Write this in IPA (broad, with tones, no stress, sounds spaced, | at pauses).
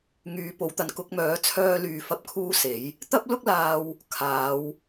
ŋ yː˨˥ p o˨˥ w t̪ ɐ˨˧ n k ʊ˨˥ k̚ m œː˨˥ t͡sʰ œː˧ l yː˨ f ɐ˨˥ p̚ kʰ uː˧ s e˨˥ j | t̪ ɐ˥ p̚ l ʊ˥ k̚ l aː˧ w | kʰ aː˨˧ w